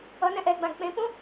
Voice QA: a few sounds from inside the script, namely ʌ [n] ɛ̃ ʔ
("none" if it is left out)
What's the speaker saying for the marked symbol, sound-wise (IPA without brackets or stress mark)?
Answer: n